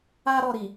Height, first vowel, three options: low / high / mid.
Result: low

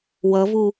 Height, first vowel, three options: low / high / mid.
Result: mid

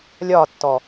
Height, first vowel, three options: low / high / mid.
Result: low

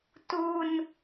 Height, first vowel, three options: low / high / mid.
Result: high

